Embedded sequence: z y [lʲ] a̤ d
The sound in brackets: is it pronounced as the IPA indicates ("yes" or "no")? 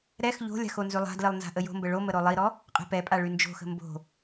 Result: no